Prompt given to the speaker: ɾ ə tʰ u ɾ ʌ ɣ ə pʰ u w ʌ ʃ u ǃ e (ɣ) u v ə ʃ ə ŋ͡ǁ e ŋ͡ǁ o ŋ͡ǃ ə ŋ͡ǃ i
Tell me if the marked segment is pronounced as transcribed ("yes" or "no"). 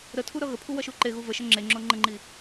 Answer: yes